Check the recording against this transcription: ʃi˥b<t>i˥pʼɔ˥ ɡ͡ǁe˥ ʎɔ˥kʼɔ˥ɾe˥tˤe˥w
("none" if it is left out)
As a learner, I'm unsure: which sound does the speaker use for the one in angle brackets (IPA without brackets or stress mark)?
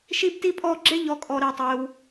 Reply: t